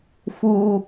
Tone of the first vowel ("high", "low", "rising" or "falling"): high